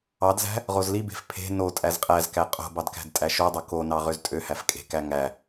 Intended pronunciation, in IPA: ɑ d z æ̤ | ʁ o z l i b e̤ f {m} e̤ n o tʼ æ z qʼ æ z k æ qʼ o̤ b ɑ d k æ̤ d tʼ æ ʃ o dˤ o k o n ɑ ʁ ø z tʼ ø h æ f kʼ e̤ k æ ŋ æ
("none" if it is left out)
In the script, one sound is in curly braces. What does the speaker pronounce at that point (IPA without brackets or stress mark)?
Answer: pʰ